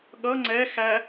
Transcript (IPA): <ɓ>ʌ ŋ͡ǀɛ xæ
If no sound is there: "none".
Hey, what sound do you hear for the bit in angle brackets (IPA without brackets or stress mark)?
ɠ